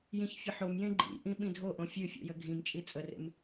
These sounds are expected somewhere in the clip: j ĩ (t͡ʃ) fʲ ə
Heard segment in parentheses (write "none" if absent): ç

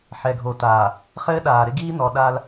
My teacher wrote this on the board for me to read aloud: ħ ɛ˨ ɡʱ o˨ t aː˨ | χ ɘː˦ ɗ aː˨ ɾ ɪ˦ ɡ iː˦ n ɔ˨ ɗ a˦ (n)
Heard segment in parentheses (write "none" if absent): l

